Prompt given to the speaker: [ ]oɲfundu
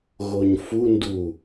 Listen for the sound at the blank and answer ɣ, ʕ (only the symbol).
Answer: ɣ